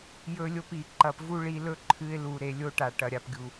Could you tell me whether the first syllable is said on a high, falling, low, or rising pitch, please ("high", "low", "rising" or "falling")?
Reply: high